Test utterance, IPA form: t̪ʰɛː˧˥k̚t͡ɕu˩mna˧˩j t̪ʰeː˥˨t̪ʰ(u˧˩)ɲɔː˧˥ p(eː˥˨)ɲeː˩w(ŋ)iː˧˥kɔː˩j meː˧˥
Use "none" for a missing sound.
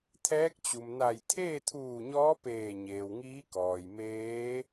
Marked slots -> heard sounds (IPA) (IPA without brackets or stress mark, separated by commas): uː˧˩, eː˧˩, ŋ